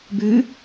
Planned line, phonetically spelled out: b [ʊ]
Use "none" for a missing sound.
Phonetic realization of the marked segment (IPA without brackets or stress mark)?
ʉ